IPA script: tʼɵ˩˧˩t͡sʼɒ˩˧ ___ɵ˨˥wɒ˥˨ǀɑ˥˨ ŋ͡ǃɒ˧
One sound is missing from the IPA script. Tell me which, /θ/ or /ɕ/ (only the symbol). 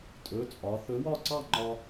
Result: θ